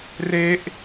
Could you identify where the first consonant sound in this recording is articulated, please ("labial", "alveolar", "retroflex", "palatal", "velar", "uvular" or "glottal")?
alveolar